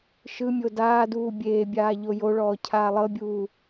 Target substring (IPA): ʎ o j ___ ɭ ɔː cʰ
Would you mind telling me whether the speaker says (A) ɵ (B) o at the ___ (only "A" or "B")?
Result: B